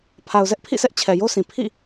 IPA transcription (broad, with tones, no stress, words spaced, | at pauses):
pʰa˨ʊ̯zɛ˦ʔpʰḭ˦˨sɛ˦ʔ t͡ɕʰɛ˨jo˦sʰĩ˨ pʰḭ˦˨